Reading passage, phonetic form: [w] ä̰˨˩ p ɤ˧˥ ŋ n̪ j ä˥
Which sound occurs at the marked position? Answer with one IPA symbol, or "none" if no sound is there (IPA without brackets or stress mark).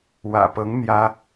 w